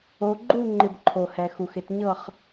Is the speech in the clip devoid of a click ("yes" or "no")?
no